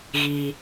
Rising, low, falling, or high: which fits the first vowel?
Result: high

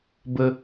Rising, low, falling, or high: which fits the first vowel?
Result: high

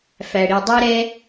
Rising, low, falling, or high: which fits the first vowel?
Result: low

